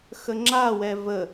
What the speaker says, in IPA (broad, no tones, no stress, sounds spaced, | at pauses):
x ə ŋ͡ǁ a w ɛ v ə